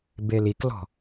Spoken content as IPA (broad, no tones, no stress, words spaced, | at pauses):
beliklɔ̤